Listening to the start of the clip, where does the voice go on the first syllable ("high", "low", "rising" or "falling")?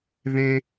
high